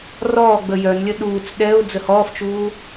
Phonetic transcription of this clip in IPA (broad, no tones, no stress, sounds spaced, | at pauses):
r ɔː ɡ͡b ə j œ n lʲ ə ɗ uː t͡s ɗ ɛ ʊ̯ d͡z ə h ɔː f t͡ʃ uː